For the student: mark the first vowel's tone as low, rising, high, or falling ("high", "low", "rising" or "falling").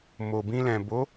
low